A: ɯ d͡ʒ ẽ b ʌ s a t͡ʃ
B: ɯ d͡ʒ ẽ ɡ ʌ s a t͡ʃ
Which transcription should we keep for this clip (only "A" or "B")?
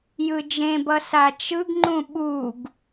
A